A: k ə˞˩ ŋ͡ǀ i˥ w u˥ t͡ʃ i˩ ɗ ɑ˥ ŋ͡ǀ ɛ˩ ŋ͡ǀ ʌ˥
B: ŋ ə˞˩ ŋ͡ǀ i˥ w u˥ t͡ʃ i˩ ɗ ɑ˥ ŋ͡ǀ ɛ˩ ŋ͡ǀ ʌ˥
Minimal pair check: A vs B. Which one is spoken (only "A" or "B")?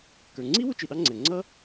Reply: A